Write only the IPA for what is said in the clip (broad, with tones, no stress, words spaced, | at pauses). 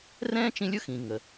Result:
rɛ̃ː˥t͡ʃĩ˧˥lʲ ʊ˧xĩ˩ ŋə˩